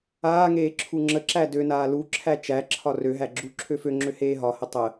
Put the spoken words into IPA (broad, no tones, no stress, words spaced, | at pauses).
aːŋeː ǁʰuŋ͡ǁəǁæ dønaː luǁʰæ t͡ʃæǁʰɒ røɦæ ɡ͡ǁu ǁʰøføŋ͡ǁø heːɦɒhə tˤə